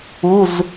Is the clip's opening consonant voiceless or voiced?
voiced